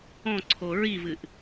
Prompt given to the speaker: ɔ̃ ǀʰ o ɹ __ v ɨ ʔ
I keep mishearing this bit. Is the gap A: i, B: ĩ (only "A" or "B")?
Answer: A